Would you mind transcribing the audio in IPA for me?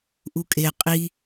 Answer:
ʔukʼe qʼi

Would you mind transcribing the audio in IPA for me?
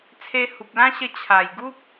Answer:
t͡sʰe˧hu˨p̚lã˦ɕə˧ t͡ɕʰa˨˩j ɡu˦p̚

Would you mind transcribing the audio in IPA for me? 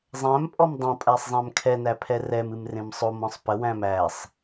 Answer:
zˤæ̃mpʼɔm dˤõ pʼæsˤzˤæ̃mkʰɛnæ pʰɛrɛmɨm rẽmsˤomɔ̃sˤ pəwæ̃m æsˤ

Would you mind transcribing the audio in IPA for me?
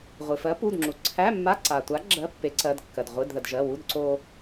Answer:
ʁʷɨ˩fɜ˨˥ pu˩˧˩dŋ͡ǁu˩ ǀʰæ˧˥˧mːa˧˥˧ ǀa˩tʷa˨˥ ɡ͡ǁɜ˧˥˧pːe˨˥ǀɜ˩˧˩dkːɜ˩d ʁʷɨ˩˧˩dðə˩d ʒɜ˩˧˩wu˧˥˧dǀo˧

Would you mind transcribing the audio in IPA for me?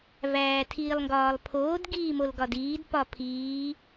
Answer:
væːtʰiːlˠŋɡɒːlˠpʰoːd ɡiːmolɡɒdiːd pɒpʰiː

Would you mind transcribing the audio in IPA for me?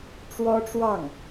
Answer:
ʈ͡ʂwɔ˥ʈ͡ʂwɑ˥˩ŋ

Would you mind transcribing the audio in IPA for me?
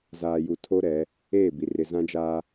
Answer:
zaː˨ju˨ tʰo˦ɾɛ˨˦ | eː˦˨bi˨ rɪ˨zã˦d͡ʒaː˦

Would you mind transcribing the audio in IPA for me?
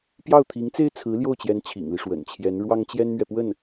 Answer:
pjɑ˥˩ʊ̯t̪ʰi˧˥ŋt͡se˥ɪ̯ t͡sʰɹ̩˧˥ljo˥˩ʊ̯t͡ɕjɛ˧˥n t͡ɕʰḭ˨˩ŋli˦ ʂwə̰˨˩nt͡ɕʰjɛ˧˥n ɻwɑ˥ŋt͡ɕjɛ˥nmɥɛ˨ pwə˥˩n

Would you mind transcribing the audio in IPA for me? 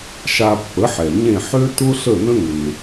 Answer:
ʃa˧pːə˩˥ħɛ˩ ɲẽ˥˩ ħø˥ tʊ˥ɬə˥˩nə̃˥ ŋe˩

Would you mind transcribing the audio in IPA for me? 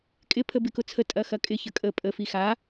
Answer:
kʼɪ pʰəbɪkʊt͡sʰə tʼɐxɐkʼɪ çəkʼə pʼə fixa

